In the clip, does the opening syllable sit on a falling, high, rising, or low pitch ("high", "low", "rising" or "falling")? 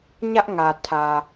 high